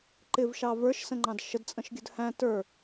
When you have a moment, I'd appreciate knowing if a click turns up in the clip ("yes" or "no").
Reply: yes